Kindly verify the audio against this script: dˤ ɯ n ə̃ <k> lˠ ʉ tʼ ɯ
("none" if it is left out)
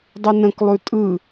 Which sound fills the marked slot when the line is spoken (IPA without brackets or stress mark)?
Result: k